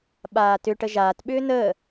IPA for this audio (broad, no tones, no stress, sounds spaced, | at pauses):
ɓ aː t ʏ ʈ ə ʒ aː t ɓ ʏː n əː